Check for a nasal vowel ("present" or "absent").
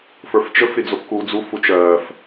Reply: absent